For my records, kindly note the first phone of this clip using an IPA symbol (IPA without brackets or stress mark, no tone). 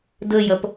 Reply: d